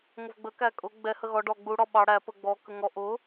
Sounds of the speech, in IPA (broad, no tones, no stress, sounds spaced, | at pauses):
ŋʷ ə v ɡ͡b ə k æ kʼ ʊ ɡ͡b ɛ h ə ɣ ɔ ɖ ɔ ɡ͡b u ɽ ɔ ɓ ɑ ɽ æ p ə ɡ͡b ɔ k ə ŋ ɔ ʔ ʊ